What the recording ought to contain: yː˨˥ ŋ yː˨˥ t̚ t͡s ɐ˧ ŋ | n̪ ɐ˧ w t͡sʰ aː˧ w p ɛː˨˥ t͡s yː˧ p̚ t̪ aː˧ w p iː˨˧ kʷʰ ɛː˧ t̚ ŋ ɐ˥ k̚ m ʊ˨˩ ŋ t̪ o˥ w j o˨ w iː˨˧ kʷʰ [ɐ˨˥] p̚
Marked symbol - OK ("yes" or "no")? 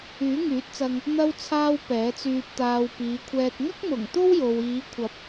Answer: yes